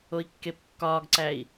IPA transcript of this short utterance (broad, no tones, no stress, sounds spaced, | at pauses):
o i̯ kː e p kː ɒː ɡ ǀ æ i̯